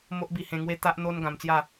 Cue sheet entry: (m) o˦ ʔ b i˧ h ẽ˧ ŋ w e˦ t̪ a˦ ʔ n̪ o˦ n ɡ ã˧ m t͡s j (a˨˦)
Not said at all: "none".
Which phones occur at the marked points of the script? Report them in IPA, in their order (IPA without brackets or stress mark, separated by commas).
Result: m, a˥˧